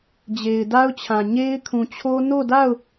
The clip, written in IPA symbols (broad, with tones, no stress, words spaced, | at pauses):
d͡ʑe˨ɪ̯da˦ʊ̯t͡ɕʰã˨ ɲe˦ɪ̯ kʰũ˨t͡ɕʰo˦ no˦˨da˦˨ʊ̯